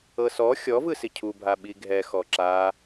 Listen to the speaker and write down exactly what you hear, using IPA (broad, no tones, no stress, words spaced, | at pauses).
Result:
ɤsɔ xʲɔvɯ sicʰubʱa ɓiɡʱɛxɔ ǁa